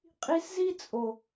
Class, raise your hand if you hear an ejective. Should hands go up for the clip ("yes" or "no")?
yes